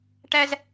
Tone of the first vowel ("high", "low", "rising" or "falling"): high